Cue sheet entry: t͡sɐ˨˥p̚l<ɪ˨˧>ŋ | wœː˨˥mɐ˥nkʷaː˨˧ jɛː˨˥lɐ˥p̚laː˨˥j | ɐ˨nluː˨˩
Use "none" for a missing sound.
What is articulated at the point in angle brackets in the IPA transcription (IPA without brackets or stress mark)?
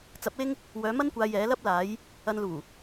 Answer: ɪ˥